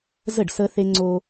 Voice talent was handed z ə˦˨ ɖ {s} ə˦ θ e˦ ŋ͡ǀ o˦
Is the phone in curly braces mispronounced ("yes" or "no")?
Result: no